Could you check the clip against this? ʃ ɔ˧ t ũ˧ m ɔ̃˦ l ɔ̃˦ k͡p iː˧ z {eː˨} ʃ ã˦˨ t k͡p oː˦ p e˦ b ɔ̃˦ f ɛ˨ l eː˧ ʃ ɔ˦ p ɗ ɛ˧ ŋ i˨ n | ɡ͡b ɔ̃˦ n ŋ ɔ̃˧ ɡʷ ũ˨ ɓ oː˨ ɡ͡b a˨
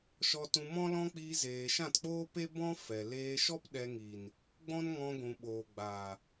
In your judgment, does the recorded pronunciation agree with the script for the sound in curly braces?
yes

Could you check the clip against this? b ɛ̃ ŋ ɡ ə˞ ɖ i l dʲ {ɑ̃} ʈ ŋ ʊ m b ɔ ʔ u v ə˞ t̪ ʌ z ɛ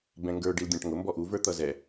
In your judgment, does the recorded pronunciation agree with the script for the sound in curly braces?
yes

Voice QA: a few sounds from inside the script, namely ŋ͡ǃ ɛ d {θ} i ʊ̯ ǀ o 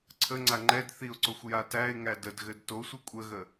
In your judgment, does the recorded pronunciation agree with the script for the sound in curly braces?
yes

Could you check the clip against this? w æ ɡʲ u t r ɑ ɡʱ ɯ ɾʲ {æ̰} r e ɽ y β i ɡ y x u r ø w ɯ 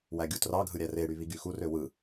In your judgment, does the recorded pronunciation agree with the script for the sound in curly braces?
no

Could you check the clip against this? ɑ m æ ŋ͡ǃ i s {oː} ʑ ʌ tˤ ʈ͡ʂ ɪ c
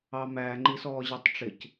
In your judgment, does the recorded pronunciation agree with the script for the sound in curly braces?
no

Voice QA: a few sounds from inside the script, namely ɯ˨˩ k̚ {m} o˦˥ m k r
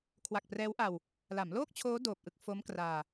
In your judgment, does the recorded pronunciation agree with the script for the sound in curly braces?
no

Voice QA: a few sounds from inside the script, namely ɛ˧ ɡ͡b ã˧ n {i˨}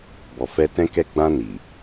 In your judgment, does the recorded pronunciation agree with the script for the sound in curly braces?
yes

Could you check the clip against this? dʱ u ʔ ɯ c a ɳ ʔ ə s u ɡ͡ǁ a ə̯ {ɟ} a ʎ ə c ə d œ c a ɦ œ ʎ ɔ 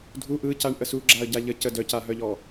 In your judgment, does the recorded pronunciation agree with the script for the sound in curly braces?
yes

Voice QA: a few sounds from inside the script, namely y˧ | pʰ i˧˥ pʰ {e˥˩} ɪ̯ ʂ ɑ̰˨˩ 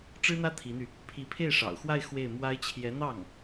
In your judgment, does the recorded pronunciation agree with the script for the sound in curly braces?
yes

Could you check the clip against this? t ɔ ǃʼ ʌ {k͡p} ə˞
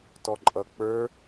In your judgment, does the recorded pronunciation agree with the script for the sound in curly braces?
yes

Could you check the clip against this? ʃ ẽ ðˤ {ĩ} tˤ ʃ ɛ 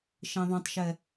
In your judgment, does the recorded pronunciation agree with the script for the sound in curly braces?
no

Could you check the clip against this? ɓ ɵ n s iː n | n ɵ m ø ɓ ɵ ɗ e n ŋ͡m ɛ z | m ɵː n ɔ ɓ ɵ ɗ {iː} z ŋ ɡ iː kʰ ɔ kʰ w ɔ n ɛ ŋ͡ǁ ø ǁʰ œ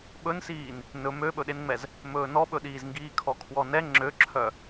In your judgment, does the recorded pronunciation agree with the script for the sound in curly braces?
yes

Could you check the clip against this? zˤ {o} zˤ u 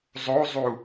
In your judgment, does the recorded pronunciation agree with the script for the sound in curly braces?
yes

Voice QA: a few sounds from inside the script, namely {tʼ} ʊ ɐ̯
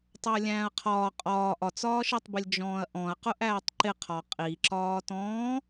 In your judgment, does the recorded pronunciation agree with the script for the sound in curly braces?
no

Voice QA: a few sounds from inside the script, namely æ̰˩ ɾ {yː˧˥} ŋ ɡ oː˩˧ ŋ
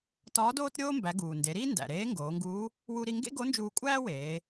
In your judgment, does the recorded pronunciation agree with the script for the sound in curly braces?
no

